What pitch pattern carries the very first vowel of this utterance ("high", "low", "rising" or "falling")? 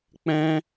high